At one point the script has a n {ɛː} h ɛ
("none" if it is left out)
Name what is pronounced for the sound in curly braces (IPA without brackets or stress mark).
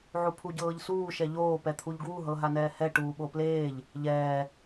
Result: ɛː